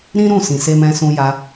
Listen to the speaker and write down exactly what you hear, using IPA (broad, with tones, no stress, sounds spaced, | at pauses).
ɾ ĩ˦ ɾ ũ˦˨ s ĩ˨ s e˧ m ɛ̃˧ s ũ˧ j a˧